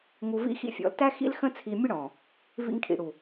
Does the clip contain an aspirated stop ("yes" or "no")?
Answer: yes